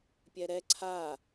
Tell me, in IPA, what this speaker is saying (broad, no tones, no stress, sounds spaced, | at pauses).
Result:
pʲ ɛ ɾ ɛ ǀʰ a